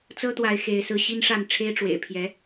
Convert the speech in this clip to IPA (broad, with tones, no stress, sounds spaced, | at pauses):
t͡s ɤ˥ t̪ w a˧˥ ɪ̯ x e˧˥ ɪ̯ s ɹ̩˥ ɕ i˥ n ʂ a˥˩ n ʈ͡ʂʰ e˥ ɪ̯ ʈ͡ʂ w ḛ˨˩ ɪ̯ pʰ j ɛ˧˥